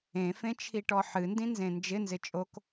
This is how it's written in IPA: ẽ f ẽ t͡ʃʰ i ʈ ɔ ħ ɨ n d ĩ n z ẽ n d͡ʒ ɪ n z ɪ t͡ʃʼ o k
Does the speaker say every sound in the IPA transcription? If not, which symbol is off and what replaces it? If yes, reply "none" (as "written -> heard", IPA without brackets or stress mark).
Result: none